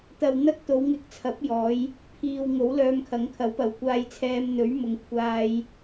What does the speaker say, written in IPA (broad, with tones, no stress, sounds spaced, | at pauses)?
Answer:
t̪ ɐ˨ w n̪ ɐ˥ k̚ t̪ o˨˧ w ŋ ɪ˧ k̚ t͡sʰ ɐ˨˥ p̚ j ɔː˨˧ j | pʰ iː˨ w ŋ o˨˥ w l œː˧ m kʰ ɐ˨˥ ŋ kʰ ɐ˨˥ w p ɐ˨˧ w kʷ aː˥ j t͡sʰ ɛː˥ m n̪ ɵ˨˥ ɥ m ʊ˨ ŋ kʷʰ aː˥ j